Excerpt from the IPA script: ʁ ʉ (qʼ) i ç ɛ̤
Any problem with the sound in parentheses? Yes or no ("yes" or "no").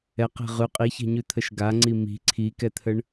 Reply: no